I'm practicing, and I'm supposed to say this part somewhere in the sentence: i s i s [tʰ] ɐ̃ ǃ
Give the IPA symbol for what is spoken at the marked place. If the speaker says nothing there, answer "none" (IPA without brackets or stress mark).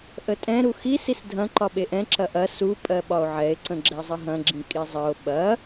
dʱ